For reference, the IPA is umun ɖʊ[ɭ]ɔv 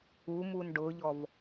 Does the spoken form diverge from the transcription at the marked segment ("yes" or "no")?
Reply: yes